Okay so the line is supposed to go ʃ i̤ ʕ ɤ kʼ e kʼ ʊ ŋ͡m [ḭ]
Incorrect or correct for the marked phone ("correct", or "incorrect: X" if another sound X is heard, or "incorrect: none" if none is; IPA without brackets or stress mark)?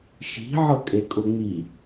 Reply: incorrect: i